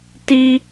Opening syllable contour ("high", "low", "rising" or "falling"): high